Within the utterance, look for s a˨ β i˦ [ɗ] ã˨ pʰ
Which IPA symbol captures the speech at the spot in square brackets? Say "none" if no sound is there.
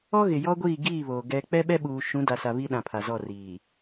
ɗ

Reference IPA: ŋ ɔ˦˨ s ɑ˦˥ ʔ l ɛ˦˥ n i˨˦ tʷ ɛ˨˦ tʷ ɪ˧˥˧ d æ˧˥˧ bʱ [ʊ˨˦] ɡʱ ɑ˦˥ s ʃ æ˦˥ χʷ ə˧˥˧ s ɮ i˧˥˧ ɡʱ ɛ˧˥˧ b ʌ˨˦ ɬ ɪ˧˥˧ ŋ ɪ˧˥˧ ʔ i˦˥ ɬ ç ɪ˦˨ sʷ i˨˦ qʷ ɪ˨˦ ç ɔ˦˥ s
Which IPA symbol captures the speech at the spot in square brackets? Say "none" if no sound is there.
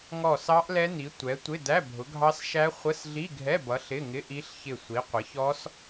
ʊ˨˦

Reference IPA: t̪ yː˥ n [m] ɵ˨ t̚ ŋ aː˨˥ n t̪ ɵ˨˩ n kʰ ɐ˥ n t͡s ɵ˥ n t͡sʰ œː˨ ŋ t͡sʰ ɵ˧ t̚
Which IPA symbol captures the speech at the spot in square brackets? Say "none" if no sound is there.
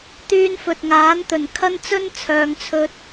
f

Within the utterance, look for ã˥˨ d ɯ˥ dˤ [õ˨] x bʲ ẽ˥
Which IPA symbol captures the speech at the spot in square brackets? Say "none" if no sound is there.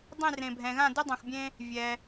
ũ˨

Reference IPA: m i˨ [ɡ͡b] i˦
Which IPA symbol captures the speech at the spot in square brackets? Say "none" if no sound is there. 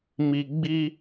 ɡ͡b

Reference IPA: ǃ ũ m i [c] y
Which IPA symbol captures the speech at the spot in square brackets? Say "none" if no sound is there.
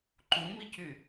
c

